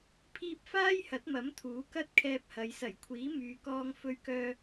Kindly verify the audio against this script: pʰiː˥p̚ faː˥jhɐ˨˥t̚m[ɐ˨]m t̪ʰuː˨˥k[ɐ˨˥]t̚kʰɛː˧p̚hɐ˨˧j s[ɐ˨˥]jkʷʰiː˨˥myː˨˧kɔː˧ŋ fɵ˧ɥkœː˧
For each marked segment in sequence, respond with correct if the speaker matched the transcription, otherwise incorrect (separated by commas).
incorrect, incorrect, incorrect